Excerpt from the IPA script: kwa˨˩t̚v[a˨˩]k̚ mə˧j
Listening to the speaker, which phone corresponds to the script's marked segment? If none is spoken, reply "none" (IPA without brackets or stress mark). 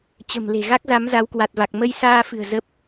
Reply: a˨˩